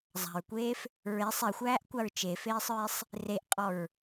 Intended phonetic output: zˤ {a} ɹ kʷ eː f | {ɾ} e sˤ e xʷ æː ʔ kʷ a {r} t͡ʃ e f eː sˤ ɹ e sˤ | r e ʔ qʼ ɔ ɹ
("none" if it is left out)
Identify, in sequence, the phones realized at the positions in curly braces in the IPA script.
a̤, ɹ, ɹ

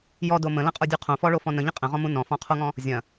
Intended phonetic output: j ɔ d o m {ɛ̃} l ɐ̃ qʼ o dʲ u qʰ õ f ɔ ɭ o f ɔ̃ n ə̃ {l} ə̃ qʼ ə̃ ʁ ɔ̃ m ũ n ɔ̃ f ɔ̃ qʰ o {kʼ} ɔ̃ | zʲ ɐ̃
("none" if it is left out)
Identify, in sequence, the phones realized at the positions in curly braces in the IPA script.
ə̃, ʎ, ŋ

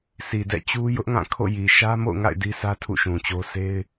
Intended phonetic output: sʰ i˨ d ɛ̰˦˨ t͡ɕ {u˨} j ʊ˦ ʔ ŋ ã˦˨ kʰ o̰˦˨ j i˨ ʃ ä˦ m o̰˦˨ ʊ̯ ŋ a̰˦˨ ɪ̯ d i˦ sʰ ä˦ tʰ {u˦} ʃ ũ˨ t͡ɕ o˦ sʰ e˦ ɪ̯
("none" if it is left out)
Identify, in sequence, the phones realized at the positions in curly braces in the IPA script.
u˦, ṵ˦˨

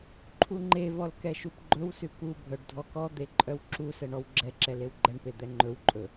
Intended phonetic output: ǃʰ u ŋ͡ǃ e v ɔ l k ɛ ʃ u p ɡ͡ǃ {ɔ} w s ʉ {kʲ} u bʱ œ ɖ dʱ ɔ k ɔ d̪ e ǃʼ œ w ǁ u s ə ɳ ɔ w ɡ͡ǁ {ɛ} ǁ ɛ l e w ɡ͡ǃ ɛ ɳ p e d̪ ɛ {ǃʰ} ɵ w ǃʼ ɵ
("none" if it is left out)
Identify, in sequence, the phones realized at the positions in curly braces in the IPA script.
ɵ, k, ɛ, ŋ͡ǃ

